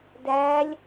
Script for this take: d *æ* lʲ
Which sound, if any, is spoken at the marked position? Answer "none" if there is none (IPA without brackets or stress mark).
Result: æ